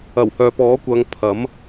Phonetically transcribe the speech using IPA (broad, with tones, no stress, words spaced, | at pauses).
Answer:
ɐ˨˩whœː˨pɔː˨˥kʷɐ˨˧ŋ pʰɐ˨˥m